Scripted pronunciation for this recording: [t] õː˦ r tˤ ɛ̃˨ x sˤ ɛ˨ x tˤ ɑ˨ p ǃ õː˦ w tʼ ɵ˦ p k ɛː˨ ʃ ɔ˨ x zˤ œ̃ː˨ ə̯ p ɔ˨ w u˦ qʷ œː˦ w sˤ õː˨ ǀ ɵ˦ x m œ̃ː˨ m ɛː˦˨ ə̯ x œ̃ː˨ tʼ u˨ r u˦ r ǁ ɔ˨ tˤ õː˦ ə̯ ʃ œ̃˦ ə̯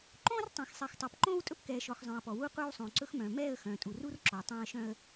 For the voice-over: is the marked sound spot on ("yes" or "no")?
no